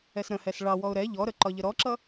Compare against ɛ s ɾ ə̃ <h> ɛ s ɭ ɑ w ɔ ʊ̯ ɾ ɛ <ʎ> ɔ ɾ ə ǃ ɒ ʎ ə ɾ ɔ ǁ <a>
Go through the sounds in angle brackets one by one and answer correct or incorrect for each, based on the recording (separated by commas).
correct, correct, incorrect